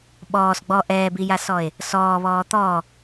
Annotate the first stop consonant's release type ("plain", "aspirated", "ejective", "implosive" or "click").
implosive